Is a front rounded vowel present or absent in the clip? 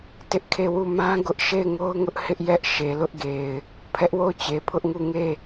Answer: absent